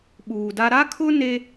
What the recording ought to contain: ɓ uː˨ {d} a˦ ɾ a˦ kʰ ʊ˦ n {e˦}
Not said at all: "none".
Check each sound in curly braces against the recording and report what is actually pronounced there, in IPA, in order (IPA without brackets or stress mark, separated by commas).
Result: d, e˦